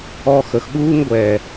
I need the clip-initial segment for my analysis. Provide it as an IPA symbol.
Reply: ɔ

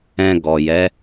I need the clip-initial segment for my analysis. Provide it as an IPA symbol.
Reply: ɛ̃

